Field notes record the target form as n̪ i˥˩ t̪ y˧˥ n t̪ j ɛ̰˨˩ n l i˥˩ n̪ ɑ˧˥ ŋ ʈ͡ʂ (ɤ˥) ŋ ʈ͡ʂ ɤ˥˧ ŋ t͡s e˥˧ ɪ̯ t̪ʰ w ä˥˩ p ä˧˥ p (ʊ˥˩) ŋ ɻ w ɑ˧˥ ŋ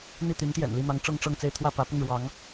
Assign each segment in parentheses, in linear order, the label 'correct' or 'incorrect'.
correct, correct

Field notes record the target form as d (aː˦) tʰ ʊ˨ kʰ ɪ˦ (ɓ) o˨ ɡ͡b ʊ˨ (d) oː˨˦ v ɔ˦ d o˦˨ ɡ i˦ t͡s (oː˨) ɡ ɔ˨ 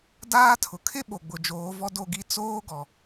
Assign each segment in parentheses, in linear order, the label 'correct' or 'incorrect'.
correct, correct, incorrect: d͡ʒ, incorrect: oː˦

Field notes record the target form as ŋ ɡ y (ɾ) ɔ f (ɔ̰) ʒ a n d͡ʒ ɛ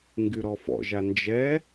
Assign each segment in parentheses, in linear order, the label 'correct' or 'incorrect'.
correct, correct

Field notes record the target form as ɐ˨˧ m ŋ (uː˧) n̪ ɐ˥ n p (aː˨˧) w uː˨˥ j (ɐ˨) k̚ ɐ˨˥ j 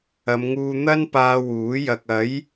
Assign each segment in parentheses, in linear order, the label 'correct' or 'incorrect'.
correct, incorrect: aː˧, correct

